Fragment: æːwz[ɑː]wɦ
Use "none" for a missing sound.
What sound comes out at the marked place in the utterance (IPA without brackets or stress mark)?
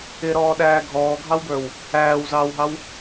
ɑː